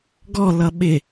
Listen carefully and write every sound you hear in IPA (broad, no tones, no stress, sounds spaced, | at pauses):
ɡ ɔ l ʌ ɓ ɪ